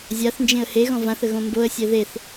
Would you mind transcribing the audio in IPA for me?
zʲaθnd͡ʒẽə̯ heɣɔ̃ vãθə ɣõmboə̯sʲɛ ðeθ

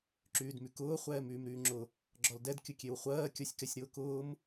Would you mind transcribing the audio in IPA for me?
ǁyːdmykʊː χʷɛːmyːmɾyːŋ͡ǁʊ | ɡ͡ǁɔldɛd kʲʊkʲewχʷɜː kʲɔsʲkɛsʲɾʊːkʊːm

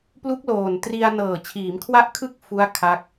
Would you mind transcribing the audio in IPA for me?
plu˦˥k̚loː˨˩n tri˧a̯ nɤː˨˩t͡ɕʰiː˩˦mkʰwa˦˥ʔkʰɯ˦˥k̚ fu˦˥a̯ kʰa˦˥k̚

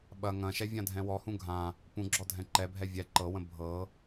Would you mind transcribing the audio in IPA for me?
ɓɐ ŋɐ̃ʃɛ vʲãdʱɛ̃wɔhũ ɡʱã | pũɡ͡ǁɔ dʱɛ̃ǃɛbʱɛ vʲɛ ǃɤwə̃ bʱɤ

